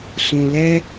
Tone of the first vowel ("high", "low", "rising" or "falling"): low